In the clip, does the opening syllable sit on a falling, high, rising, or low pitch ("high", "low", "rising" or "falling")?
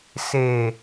low